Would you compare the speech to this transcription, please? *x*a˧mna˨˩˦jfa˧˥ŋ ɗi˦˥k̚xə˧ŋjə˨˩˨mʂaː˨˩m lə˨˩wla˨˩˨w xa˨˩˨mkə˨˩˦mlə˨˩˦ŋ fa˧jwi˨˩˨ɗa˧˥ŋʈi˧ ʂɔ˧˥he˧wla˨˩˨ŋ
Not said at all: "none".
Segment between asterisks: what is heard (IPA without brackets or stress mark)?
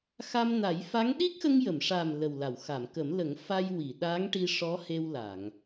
x